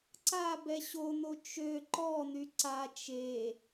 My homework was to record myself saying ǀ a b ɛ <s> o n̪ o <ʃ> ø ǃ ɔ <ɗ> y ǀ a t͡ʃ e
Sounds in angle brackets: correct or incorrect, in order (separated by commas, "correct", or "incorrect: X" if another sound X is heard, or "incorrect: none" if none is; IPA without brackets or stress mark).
incorrect: ɕ, incorrect: t͡ʃ, incorrect: n̪